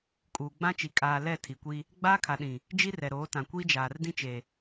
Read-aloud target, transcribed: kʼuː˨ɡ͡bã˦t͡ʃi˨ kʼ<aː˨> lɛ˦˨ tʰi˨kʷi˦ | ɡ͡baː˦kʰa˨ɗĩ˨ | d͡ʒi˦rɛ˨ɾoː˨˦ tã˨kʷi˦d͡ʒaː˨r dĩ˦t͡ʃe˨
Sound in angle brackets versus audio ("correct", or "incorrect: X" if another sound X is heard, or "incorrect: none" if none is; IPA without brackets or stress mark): correct